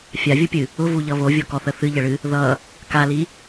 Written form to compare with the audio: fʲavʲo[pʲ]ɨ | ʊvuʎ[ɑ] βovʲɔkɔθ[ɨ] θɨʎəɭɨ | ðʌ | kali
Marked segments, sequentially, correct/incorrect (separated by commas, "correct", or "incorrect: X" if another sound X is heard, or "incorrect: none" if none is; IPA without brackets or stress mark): correct, incorrect: ʌ, incorrect: ə